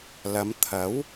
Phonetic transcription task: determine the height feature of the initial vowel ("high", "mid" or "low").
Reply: low